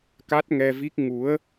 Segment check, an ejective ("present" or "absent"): absent